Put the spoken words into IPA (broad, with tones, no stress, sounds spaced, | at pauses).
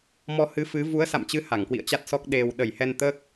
m ɔ˧ h ɨ˨˦ f ɨ˨˦ v u˨˦ ə̯ s a̰˧˨ m t͡ɕ ɨ˨˦ h a˧˩ ŋ k w ḭ˧˨ ə̯ t͡ɕ a˦˥ t̚ s ɔ˦˥ k̚ ɗ e˨˩ w ɗ ə˧˩ j h ɛ˧ n t̪ əː˦˥ k̚